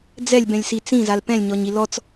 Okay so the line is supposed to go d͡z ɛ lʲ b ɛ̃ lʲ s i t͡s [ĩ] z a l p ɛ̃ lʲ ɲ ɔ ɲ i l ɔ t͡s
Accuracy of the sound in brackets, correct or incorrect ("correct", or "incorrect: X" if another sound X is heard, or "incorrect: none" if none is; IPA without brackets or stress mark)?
correct